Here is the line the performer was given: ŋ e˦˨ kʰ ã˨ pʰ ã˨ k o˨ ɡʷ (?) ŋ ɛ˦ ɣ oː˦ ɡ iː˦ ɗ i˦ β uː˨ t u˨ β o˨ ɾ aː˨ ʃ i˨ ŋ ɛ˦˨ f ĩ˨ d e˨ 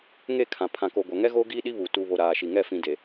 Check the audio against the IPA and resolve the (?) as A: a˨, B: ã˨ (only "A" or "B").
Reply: A